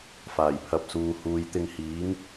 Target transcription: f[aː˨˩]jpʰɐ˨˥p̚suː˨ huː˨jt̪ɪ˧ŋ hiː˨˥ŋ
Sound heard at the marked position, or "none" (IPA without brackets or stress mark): aː˨˩